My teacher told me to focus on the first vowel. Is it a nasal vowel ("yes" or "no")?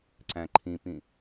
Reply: yes